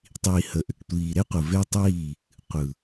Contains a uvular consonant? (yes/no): yes